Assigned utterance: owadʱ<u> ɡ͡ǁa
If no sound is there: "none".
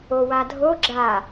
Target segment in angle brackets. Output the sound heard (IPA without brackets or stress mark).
o